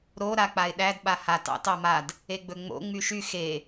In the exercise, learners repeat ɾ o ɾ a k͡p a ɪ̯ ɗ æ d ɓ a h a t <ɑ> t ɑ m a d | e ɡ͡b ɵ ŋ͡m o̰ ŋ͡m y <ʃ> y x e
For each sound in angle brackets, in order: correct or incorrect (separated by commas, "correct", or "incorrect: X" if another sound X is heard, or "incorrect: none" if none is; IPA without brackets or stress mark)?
incorrect: ɑ̰, correct